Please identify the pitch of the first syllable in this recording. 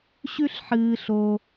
high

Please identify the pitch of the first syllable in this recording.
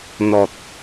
low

